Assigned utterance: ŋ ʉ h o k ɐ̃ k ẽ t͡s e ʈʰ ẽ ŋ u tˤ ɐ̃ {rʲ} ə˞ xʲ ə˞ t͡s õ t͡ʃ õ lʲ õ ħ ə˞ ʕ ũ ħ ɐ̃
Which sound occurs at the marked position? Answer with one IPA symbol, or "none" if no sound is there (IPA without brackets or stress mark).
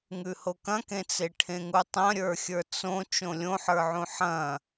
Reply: ɾʲ